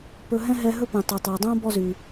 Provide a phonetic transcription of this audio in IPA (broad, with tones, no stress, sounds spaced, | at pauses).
p ɵ˦ ɦ ɛ̃˥ ɦ ɛ˦ ɦ ɵ˥ p ɛ̃˨ tˤ ɵ˨ tˤ ɛ˨ dˤ õ˥ b ɔ˦ z y˩